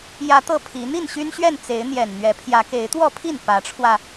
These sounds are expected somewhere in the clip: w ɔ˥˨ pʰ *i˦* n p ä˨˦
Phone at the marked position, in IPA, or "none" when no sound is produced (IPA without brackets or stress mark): i˥˨